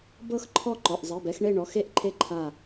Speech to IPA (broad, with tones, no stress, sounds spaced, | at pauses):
b ɤ˦˨ x ǃʰ ɔ˦˨ ǃ ɔ˩˧˩ ʔ zˤ e˩˧˩ b ɛ˦˨ x ɳ e˦˨ ɳ ɔ˩˧˩ x e˦˥ ʔ ǃʰ e˦˥ ǃʰ a˦˨